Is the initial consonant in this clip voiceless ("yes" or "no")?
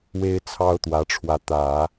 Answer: no